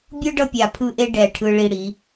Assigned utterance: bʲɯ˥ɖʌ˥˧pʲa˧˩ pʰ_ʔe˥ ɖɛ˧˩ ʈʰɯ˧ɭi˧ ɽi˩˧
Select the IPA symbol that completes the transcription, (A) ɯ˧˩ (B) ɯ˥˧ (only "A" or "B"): B